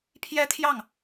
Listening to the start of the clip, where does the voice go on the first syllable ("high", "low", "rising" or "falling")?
high